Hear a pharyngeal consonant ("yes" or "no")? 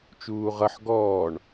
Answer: yes